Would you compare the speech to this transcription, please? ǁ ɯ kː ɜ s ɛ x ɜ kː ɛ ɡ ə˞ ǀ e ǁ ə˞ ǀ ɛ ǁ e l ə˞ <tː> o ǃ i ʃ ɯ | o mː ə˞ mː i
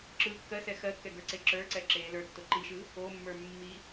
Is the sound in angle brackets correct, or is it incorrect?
correct